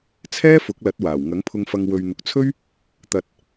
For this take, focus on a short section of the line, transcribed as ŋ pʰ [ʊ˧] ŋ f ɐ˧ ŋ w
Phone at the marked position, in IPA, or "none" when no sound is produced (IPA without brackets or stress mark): ʊ˧